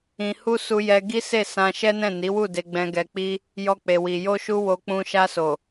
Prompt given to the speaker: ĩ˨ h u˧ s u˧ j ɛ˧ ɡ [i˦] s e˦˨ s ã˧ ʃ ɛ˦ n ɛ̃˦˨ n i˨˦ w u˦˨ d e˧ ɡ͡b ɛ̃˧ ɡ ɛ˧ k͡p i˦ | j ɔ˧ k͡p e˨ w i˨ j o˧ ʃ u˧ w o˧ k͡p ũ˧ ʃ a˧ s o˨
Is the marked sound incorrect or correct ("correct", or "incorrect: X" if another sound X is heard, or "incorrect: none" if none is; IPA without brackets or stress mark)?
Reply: correct